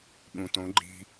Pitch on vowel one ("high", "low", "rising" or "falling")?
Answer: low